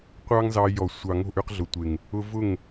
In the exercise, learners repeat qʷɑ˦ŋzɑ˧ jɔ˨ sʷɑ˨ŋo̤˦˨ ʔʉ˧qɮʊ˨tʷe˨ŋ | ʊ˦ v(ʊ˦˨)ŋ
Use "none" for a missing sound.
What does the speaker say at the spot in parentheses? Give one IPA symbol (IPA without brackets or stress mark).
ʊ˦˨